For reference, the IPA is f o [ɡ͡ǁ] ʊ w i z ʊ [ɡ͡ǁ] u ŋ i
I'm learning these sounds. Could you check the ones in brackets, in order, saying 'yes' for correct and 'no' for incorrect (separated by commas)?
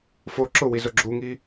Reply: no, yes